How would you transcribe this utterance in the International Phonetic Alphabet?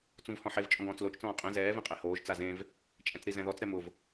t͡s ũ v h ɔ̃ ħ e v t͡ʃʼ ɔ̃ ɡ ɔ̃ː t͡s l o t͡ʃ t͡s ɔ̃ː qʼ ẽ z ɛː v ẽ qʼ e h oː ʒ t͡s a z ẽ v | t͡ʃʼ ɛ̃ t͡s ɾ i z ɛ̃ ð ɔ t͡s ɾ ɛ m ʊ v

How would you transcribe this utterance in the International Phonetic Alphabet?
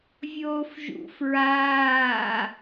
vʲ oː f ʒ ṵ f ɹ aː

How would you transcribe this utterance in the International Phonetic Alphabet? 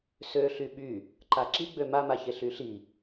s ø ɬ y ɓ y | ǃ a ǁ i ɡ͡b ø m a m a ç e ɬ y ɬ i

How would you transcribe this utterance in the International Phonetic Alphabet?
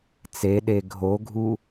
t͡s e ɗ e ɡʱ o ɡʱ u

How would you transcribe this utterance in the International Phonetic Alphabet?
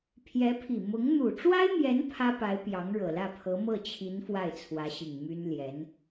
pʰ j ɛ˧˥ pʰ i˨˩ m ʊ˧˥ ŋ n̪ u˨˩ ʈ͡ʂ w a˥ ɪ̯ m j ɛ˧˥ n pʰ ä˥ p a˧˥ ɪ̯ p j ɑ˧˥ ŋ ɻ ɤ˨˩ l ä˥˩ pʰ ɤ˧˥ m ɤ˥˩ t͡ɕʰ i˧˥ n f w a˥˩ ɪ̯ t͡sʰ w ä˧˥ ɕ i˨˩ ŋ m y˥ n l j ɛ˧˥ n

